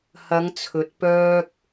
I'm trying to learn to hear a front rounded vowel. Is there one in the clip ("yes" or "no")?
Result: yes